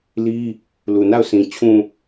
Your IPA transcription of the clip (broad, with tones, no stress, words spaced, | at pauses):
li˦ | lu˨na˦˨ʊ̯sĩ˨ t͡ɕʰũ˨